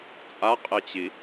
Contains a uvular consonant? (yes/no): yes